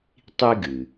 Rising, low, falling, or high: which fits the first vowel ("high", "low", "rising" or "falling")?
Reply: high